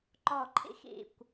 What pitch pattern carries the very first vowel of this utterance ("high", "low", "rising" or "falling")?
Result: falling